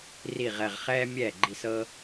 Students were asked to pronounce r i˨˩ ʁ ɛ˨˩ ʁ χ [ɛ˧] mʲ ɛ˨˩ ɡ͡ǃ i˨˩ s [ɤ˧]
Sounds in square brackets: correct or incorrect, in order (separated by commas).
incorrect, correct